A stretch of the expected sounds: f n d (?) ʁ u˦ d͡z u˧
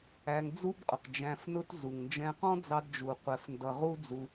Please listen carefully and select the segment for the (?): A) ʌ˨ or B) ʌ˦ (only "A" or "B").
A